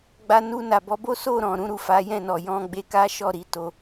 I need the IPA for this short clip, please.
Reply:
ɡ͡b a˧ n u˧ n a˨ b ɔ˨˦ b o˦ s o˦˨ ɾ ɔ̃˨ ɾ ũ˧ ɾ u˨ f a˨˦ j ɛ̃˦˨ n ɔ˨ j ɔ̃˧ ɡ͡b e˧ k a˦ ʃ ɔ˦˨ ɾ i˨˦ t o˧

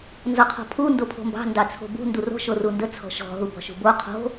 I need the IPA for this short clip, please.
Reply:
n z ɔ qʰ ɔ̤ pʰ u n d o pʰ o̤ m b ɑ̤ n d ɑ t͡sʰ o̤ b ṳ n d u r o̤ ʃ o r u n d ə t͡sʰ ɔ̤ ʃ ɔ̤ ɦ u b ɔ̤ ʃ ṳ b o qʰ o̤

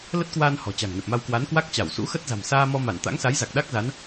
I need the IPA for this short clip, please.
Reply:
l ə˦˥ t̚ k w aː˧ n h ɔ̤˨˩ t͡ɕ a̤˨˩ ŋ n ə˨˩ p̚ m a˧ w k w a˨˦ n k w a˦˥ k̚ t͡ɕ a˧˩ w s ṵ˧˥ x ə˦˥ t̚ z a̤˨˩ m s aː˧ m ɔ˧ m a˧˩ n t̪ a̰˧˥ ŋ s a˨˦ j z a˨˩ k̚ ɗ a˦˥ k̚ z a˨˦ n

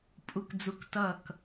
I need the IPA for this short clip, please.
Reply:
pʼ u˦˨ k d͡z u˧˥ k t ʌ˦˨ k

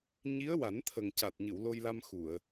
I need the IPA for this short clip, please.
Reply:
ɲ i˧˥ ə̯ w a˨˩˦ n t̪ʰ ə˨˩ ŋ c a˨˩ t̚ ɲ ɨ˨˩˨ w l o˧ j l a˧ m x u˨˩˨ ə̯

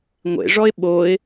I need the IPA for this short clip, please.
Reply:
ŋʷ ḛ ʐ ɔ ɪ̯ ɓ o ɪ̯

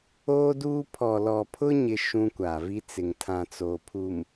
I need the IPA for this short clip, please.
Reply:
oː˦ d uː˦ pʰ ɔ˨ l ɔ˨ pʰ ʊ˦ ɲ ɪ˦ ʃ ũ˦ kʷ a˨ v i˦ t͡s ɪ˨ ŋ tʰ ã˨ t͡s oː˨ pʰ u˨ m

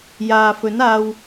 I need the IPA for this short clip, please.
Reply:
j aː˨ f ɵ˨˥ n aː˧ w

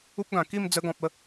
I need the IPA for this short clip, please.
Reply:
u˦ p̚ ɡ ã˨˩ k i˥˧ m d͡z ə˧ ɡ ɔ̃˨ p̚ ə˥˧

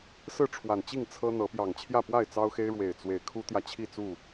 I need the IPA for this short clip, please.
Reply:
s ɹ̩˥˨ ʈ͡ʂʰ w a˨˩ n t͡ɕ i˥˨ ŋ t͡sʰ ɤ˦ n̪ ɤ˨˦ p j ɑ˨˩ ŋ t͡ɕʰ j ä˥˨ p w a˥˨ ɪ̯ t͡s ɑ˦ ʊ̯ x e˦ ɪ̯ ɻ w e˨˩ ɪ̯ t͡s w e˨˦ ɪ̯ kʰ u˦ t̪ j ä˨ t͡ɕʰ i˥˨ t͡s u˥˨

